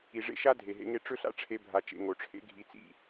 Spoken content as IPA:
i˨ ʐ ḛ˦ ʃ a˦ dʱ e˨ ɦ ḛ˧ ŋ e˧ ʈ͡ʂ ɵ˦ ɬ a̰˦ ʈ͡ʂʰ e˧ bʱ a˧ t͡ʃ ḛ˧ ŋ o˨ ʈ͡ʂʰ ḛ˦ ɡʱ i˧ t͡s ḭ˦˨

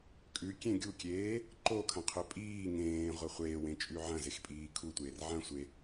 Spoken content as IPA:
kʼ ʉ kʲ ẽ ɡʲ u kʲ eː | ǃ o kʰ ɐ̃ qʰ ɵ pʼ iː ŋ ẽː ʁʷ ɐ χʷ eː w ẽ t͡ʃʼ ʉ ʕ ɐ̃ z e x pʼ iː kʰ u tʷ eː r ʕ ɐ̃ sʷ e

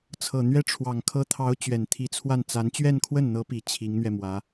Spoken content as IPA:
t͡sʰ ɤ˨˩ n̪ ɥ ɛ˥ ʈ͡ʂʰ w ɑ˨˩ ŋ kʰ ɤ˥ t̪ʰ ɑ˧˥ ʊ̯ t͡ɕ ɥ ɛ˨˩ n t̪ʰ i˧˥ t͡sʰ w a˥˩ n t͡s a˧˥ n t͡ɕ ɥ ɛ˥˧ n kʰ w ə˥˩ n n̪ ɤ˧˥ p i˨˩ t͡ɕʰ i˧˥ ŋ n̪ ɥ ɛ˧ m w ä˧˥

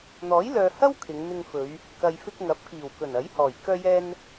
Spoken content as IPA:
n̪ ɔː˨˥ j l œː˨ h ɐ˥ w kʰ ɪ˨˧ ŋ n̪ ɪ˧ ŋ f ɵ˨˧ ɥ | k ɐ˨ j f ɪ˧ k̚ ŋ ɐ˨˥ p̚ k iː˨˩ w k ɵ˨˩ n ɐ˨˥ j h ɔː˨˩ j k œː˧ j ɛː˧ n

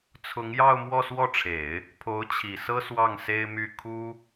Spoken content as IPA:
t͡sʰ ʊ˧˥ ŋ j ɑ˥˧ ʊ̯ m w ɔ˥˧ s w ɔ˥˩ ʈ͡ʂʰ e˨˩˦ ɪ̯ | pʰ o˧˥ ʊ̯ t͡ɕʰ i˨˩ s ɤ˥ s w ɑ˥˩ ŋ s e˥ ɪ̯ m y˥˩ kʰ u˥

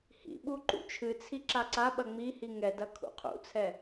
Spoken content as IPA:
h ḭ ɓ u ǃ ṵ t͡ʃʰ ɨ t͡sʰ i ǁ a ǀ a ɓ ɐ ŋ͡m i h i ŋ ɛ d ɐ kʰ ṵ qʰ ṵ t͡sʰ ɛ

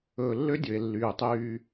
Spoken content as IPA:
ɵː˨ lː ø˦ dʲ ɵ˨ e̯ lː yː˨ tˤ yː˦

